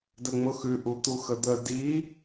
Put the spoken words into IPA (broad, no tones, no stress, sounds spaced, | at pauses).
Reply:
d ə ŋ͡m ʊ x ʉ ʔ u t̪ u x ə d̪ ə d i